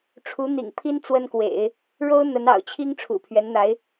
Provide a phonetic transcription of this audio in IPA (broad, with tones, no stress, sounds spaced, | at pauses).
ʈ͡ʂʰ u˧˥ n̪ ḭ˨˩ ŋ pʰ i˥ n t͡s w ə˥ n k w ḛ˨˩˦ ɪ̯ | ɻ o˥ ʊ̯ n̪ ə˧˥ n ɑ̰˨˩ ʊ̯ t͡ɕʰ i˥ ŋ ʈ͡ʂʰ ṵ˨˩ pʰ ɥ ɛ˧˥ n n̪ a˧˥ ɪ̯